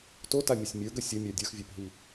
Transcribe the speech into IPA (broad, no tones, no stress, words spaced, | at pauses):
totamʲɵsʲ mʲə˞ɡə sʲʌmʲa dʲə˞xvʲə˞pɦi